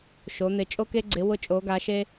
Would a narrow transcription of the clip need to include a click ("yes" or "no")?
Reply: yes